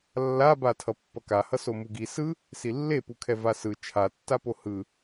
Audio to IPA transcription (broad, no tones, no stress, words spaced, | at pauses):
lːaba tʰʌpːʌkahʌ somuɡi sɯ | silːepukʰɛ vasɯ t͡ʃʰatːapo hɯ